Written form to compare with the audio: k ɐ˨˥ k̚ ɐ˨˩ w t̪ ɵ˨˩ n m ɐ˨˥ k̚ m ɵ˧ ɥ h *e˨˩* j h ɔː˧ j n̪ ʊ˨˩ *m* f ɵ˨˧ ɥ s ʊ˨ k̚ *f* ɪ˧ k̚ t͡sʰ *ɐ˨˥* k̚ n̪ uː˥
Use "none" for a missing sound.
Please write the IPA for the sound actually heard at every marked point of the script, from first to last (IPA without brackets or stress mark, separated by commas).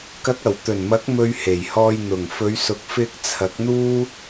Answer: e˨˩, ŋ, f, ɐ˨˥